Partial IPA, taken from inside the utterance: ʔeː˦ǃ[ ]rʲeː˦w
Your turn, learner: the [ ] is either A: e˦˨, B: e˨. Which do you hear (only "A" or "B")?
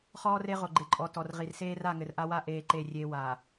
A